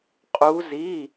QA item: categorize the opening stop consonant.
ejective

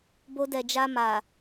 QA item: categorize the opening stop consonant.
plain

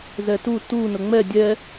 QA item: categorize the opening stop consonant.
plain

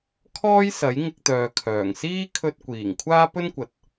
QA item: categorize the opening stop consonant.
aspirated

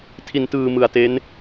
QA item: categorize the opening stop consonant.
aspirated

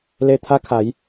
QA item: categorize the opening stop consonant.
aspirated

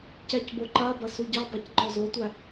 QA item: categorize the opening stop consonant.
plain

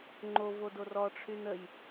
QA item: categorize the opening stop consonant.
click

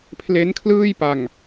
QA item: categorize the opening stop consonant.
aspirated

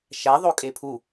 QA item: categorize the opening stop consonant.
ejective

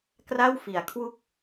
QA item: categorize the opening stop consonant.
plain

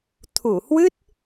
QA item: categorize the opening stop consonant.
aspirated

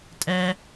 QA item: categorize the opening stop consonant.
ejective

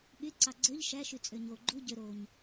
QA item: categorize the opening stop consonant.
implosive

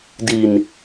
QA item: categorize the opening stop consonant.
plain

